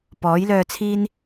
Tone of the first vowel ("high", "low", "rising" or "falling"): rising